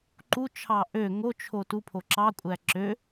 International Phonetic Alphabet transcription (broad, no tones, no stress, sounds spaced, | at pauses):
ǃ u t͡ʃʰ ɑ ʔ ø ŋ o t͡ʃʰ o t u pʰ o ǁ ɑ kʷʼ æ ǁ ø